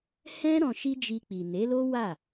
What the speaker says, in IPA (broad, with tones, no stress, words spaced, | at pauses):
hɛ̃˦ ɾɔ̃˧ʃi˦d͡ʒi˧k͡pi˨ ne˨˦lo˦ wa˦˨